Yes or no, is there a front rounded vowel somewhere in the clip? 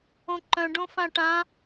yes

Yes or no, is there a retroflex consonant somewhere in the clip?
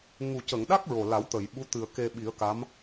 no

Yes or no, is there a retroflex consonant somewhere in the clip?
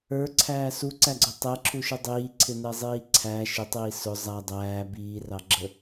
no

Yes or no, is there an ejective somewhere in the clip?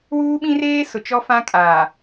yes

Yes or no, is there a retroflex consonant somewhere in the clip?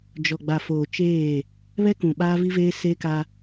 no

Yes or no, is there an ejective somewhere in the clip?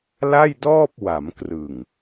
no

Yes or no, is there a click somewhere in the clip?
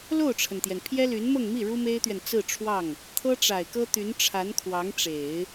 no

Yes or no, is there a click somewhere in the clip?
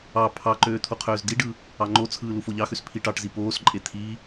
yes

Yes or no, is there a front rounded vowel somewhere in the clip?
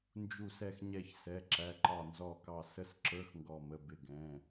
no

